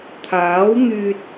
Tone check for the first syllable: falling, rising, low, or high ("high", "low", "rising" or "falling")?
rising